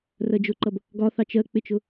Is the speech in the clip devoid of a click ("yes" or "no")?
no